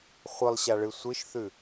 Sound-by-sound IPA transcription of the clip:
χʷɨlˠɕaɭɨ sʷɨʃθʉ

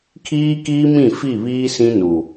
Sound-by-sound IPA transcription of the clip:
kʰiː˦kiː˦mĩ˦˨ fi˦˨βiː˦ sĩ˦nu˨

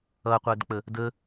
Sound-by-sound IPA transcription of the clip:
ʌqʷɜdk͡pə | də

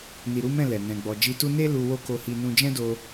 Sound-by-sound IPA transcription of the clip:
ni˨ɾu˨˦mɛ̃˦˨ lɛ˨ nɛ̃˨ ɡ͡bɔ˨d͡ʒi˧tu˦ ne˦ lu˧wo˦ko˧hi˧ nũ˧d͡ʒɛ̃˦do˧

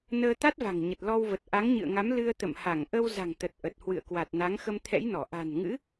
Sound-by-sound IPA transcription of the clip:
nəː˧t̪a˦˥t̚va̤˨˩ŋ ɲə˨˩t̚lɔ˧wvə˨˩t̚ ʔa˨˦ŋɲɨ̰˧˨ə̯ŋa˨˦m lɨ˧ə̯ t̪ə̰˧˨m ha˧˩ŋʔə˧wza̤˨˩ŋt̪ə˨˩t̚ ʔə˨˩t̚hwɨ̰˧˨ə̯kwa˨˩t̚ na˨˦ŋxə˧mt̪ʰɛ̰˧˥jnɔ˧˩ ʔa̤˨˩nŋɨ̰˧˥

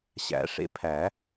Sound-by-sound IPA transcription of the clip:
ɕæ̰˨˩˦ʂḛ˧pʰæ˨˩˦

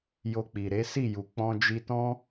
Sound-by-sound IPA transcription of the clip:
jo˧k͡pi˨ɾe˨˦ si˦˨ju˨ k͡pɔ̃˧d͡ʒi˧tɔ̃˦

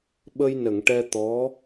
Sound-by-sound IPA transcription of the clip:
ɓə˧jnə˨˩˨ŋʈɛ˧ t̪ɔ˧˥

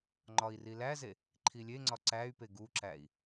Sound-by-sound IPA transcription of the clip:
ŋ͡ǃɒi̯rilæze | ǃʰilʲeŋ͡ǀɒ ǀæy̯pe ɡuǁæi̯

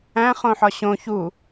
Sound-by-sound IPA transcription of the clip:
æ̃ χõħɒɕõ çu

